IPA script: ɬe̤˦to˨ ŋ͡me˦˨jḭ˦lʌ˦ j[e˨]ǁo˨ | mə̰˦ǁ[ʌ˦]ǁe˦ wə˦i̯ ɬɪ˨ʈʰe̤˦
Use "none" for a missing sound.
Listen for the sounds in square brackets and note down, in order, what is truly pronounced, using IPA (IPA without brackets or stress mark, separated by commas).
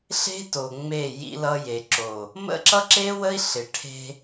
e˨, ʌ˦